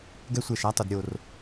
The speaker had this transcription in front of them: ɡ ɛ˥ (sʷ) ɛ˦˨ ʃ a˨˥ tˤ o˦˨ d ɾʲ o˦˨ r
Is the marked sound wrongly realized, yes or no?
no